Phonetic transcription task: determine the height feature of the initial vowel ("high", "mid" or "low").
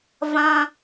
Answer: low